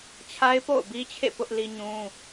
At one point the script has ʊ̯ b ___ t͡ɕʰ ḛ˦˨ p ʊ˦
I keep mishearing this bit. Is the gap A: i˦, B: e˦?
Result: A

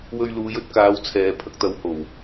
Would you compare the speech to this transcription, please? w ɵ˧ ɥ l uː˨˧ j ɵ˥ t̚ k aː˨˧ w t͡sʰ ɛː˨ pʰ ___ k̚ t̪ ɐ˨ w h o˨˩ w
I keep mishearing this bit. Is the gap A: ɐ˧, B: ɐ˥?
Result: A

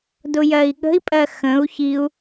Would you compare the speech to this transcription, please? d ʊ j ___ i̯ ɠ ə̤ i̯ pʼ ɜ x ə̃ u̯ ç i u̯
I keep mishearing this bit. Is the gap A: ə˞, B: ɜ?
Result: B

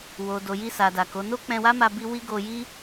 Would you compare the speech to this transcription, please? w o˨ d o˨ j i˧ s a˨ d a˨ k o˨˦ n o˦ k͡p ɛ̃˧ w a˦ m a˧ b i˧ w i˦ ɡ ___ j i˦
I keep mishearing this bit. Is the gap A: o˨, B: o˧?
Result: B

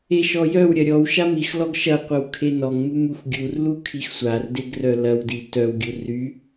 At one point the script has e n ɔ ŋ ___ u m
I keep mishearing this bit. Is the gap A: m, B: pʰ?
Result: A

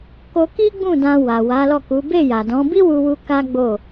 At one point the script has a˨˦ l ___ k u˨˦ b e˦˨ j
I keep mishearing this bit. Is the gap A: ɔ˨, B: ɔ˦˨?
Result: B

